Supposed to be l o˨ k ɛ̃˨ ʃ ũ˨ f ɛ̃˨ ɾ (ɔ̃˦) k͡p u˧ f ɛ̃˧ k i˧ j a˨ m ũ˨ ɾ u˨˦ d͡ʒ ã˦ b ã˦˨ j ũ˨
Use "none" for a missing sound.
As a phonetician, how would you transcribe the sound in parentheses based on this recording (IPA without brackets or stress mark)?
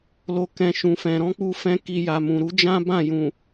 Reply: ɔ̃˨˦